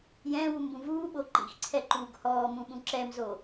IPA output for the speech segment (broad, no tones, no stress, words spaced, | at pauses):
jɛ̃ːwumbũ vuːɓo ǃḭxǀʰɛǃuːɡ hɔːmũɓũ ǁɛmzo